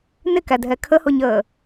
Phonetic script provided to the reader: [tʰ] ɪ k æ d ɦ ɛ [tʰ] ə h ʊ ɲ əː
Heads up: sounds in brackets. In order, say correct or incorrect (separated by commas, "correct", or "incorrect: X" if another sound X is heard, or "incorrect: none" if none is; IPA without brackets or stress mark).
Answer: incorrect: n, incorrect: kʰ